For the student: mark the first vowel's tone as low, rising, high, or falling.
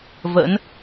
rising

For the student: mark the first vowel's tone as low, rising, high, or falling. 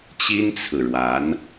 high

